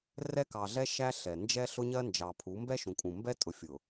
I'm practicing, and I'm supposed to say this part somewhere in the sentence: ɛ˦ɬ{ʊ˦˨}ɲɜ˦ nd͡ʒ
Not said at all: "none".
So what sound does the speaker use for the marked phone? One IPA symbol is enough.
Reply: ʊ˦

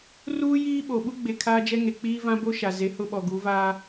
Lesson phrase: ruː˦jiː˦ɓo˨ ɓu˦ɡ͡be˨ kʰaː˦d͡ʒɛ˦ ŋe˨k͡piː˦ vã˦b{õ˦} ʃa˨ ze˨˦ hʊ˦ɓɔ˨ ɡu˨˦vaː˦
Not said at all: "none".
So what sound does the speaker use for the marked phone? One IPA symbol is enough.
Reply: o˦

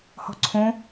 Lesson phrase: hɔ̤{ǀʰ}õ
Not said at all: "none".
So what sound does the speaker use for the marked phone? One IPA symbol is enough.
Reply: ǀʰ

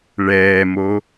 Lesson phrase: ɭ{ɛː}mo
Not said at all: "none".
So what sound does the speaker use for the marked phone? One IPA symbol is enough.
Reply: ɛː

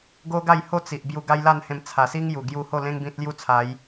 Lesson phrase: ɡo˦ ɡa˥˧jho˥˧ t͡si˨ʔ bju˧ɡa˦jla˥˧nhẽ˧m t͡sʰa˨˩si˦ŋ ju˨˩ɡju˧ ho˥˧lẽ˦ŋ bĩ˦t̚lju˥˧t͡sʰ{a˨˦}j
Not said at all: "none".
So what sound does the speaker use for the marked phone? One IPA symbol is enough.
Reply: a˨˦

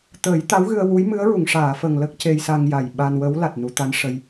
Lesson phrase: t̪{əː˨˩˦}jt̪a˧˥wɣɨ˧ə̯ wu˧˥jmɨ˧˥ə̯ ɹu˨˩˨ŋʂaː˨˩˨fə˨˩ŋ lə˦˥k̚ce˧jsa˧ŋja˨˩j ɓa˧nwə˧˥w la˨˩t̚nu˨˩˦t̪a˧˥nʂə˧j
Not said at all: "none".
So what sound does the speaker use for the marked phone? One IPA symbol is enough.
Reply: əː˨˩˦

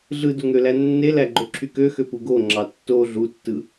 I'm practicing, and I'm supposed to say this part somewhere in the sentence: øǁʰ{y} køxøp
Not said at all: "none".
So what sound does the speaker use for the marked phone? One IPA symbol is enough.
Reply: y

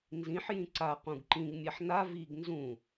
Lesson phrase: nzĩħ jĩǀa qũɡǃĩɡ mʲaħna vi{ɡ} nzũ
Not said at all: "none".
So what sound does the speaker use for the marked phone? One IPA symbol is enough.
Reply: ɡ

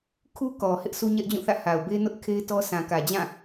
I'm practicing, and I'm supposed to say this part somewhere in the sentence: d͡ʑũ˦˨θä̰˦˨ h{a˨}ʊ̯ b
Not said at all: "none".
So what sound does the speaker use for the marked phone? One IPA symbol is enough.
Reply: a˨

